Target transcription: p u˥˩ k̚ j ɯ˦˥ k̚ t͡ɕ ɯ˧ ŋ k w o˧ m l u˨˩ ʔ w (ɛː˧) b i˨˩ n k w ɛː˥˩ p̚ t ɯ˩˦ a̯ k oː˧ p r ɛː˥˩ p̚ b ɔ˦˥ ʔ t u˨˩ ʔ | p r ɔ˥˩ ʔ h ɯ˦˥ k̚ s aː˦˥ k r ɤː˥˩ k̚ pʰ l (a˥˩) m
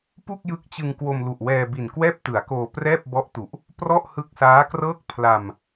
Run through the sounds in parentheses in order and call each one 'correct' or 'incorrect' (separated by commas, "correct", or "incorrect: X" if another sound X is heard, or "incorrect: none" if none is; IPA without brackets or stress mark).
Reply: correct, incorrect: a˧